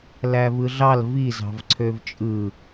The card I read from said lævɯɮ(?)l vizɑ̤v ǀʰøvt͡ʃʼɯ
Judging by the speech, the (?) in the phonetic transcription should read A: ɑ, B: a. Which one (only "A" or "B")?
A